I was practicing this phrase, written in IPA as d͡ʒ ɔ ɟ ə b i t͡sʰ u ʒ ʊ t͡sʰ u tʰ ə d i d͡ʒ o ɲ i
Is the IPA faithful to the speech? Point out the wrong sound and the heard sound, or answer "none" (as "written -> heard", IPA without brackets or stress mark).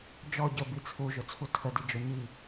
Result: none